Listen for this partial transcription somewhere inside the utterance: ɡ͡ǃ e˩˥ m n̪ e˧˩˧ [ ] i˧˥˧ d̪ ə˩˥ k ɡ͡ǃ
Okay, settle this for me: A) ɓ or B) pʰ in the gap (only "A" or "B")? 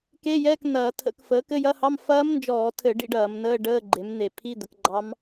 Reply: B